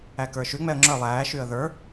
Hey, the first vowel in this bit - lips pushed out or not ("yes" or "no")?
no